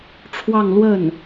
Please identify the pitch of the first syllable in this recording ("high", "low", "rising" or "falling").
falling